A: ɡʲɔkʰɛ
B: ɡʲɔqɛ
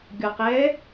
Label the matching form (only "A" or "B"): B